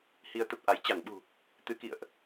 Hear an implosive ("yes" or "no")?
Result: yes